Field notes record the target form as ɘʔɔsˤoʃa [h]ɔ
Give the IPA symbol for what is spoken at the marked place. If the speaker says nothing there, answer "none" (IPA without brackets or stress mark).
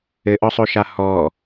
h